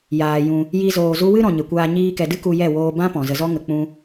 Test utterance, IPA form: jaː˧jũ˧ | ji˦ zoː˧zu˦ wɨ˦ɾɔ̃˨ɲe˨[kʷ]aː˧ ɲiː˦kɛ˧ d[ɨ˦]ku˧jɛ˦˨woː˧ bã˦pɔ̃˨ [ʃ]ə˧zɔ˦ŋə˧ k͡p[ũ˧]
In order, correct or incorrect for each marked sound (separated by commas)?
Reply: correct, correct, incorrect, incorrect